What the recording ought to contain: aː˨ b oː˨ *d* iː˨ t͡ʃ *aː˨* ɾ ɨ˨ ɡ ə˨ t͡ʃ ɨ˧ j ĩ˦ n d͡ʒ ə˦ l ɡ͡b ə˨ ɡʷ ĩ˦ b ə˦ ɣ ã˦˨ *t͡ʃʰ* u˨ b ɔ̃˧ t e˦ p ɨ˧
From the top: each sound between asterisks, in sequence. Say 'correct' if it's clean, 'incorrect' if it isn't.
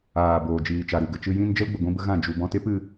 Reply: incorrect: d͡ʒ, incorrect: a˨, incorrect: d͡ʒ

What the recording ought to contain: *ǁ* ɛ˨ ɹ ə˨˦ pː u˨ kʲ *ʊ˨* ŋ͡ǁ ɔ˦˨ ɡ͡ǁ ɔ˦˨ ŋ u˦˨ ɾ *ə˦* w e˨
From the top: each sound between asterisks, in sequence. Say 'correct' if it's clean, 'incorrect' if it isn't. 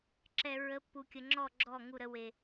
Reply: correct, incorrect: ə˨, correct

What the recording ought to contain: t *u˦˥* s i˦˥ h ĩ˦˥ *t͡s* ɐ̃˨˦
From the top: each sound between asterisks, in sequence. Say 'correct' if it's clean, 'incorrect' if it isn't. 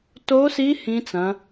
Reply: incorrect: o˦˥, correct

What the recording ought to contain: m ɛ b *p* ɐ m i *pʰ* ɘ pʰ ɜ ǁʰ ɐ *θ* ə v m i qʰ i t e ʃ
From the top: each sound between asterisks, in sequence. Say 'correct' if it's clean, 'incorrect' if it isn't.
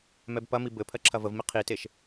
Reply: correct, incorrect: b, incorrect: v

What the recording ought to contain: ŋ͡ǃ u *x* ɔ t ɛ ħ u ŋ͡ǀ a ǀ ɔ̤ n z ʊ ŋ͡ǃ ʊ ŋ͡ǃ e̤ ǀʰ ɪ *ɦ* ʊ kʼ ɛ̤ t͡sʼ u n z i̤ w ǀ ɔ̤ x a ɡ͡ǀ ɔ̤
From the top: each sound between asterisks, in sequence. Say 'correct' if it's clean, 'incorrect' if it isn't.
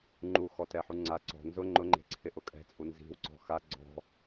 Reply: correct, incorrect: ʔ

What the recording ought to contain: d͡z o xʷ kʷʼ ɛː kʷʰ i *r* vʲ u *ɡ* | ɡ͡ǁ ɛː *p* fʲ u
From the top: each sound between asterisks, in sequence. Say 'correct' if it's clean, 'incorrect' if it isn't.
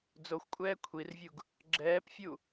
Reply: correct, correct, correct

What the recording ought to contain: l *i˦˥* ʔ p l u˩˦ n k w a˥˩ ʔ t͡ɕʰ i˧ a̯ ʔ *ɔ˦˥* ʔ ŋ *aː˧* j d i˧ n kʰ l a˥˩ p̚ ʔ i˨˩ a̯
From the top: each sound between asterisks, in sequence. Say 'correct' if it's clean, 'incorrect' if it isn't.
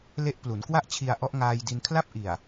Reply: incorrect: e˦˥, correct, correct

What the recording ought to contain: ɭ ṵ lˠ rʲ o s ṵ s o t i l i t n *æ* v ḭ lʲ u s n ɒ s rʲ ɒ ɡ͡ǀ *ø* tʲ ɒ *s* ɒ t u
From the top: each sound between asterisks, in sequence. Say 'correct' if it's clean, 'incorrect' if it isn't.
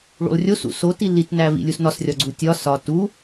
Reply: correct, incorrect: u, correct

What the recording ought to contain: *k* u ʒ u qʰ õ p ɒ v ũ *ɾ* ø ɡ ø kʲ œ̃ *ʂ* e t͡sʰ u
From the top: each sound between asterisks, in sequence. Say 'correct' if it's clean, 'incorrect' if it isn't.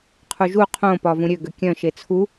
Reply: incorrect: qʰ, incorrect: ɾʲ, incorrect: ʃ

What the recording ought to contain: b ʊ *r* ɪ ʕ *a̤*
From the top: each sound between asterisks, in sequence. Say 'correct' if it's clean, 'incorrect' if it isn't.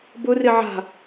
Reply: correct, correct

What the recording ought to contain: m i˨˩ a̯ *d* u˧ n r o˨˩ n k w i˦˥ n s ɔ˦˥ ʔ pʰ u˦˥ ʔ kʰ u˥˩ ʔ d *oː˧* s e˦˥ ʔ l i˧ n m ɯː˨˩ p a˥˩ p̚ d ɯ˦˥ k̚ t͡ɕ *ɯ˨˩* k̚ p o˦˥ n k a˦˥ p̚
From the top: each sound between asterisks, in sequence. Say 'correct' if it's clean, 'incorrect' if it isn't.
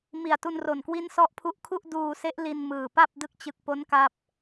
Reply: incorrect: t, incorrect: uː˧, correct

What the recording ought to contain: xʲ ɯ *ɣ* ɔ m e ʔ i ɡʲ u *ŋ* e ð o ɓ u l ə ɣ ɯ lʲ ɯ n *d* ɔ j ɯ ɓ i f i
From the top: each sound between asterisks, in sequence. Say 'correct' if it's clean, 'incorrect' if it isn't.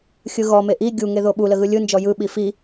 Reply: correct, correct, incorrect: d͡ʒ

